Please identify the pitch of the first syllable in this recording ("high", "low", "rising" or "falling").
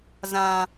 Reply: high